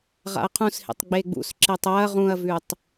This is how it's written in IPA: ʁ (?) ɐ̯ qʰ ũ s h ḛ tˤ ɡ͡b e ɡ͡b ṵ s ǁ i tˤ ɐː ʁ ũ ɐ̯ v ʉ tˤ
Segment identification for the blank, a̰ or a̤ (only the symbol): a̰